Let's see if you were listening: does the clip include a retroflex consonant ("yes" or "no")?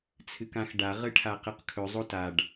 yes